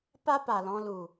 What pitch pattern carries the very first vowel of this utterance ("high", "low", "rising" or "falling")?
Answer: high